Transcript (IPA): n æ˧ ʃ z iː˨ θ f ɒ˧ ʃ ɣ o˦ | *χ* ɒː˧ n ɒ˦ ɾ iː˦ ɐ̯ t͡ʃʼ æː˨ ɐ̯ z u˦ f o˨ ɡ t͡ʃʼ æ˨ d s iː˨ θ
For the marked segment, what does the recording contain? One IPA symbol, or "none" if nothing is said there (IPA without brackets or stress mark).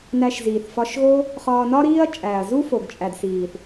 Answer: χ